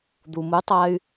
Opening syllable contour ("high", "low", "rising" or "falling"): low